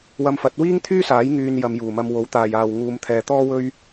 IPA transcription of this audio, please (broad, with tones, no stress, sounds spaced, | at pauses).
w ɐ˧ m f ɐ˨˥ t̚ w iː˥ ŋ t̪ʰ yː˥ s aː˨˥ j ŋ yː˧ n j ɐ˨˧ m j uː˨˩ m ɐ˧ m w o˨˥ w t̪ aː˨ j aː˨ w ŋ uː˨˧ m t̪ʰ ɛː˨ t̪ ɔː˥ w ɵ˥ ɥ